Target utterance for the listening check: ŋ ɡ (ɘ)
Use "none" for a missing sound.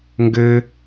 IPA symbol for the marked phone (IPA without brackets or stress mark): ɘ